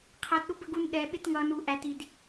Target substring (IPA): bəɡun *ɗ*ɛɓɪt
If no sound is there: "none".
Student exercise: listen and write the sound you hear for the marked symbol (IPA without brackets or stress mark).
ɗ